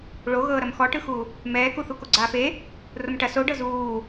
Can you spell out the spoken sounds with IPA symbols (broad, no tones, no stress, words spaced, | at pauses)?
ɭoɣɤːɾɐm xɔʈɯxu | mɛːkuθu koɡ͡ǀaːfe | romʈɐ soɖɤ zuː